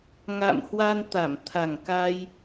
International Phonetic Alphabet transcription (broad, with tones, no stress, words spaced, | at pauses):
ŋa̰˧˨mhwa˧n t̪a˧˩mt̪ʰa˨˩ŋka˧j